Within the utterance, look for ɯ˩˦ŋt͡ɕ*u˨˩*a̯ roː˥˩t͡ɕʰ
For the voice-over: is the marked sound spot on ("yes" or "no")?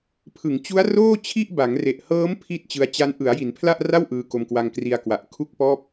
no